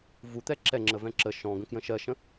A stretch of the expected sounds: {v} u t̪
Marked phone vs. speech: correct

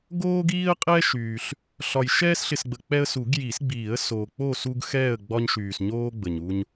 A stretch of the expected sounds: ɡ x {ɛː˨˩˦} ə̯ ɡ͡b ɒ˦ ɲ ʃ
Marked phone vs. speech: incorrect: ɛː˥˨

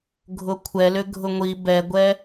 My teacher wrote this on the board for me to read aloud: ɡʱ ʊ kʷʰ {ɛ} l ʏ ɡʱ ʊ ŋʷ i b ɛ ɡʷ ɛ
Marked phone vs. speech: correct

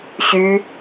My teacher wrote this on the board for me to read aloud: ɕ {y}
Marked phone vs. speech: correct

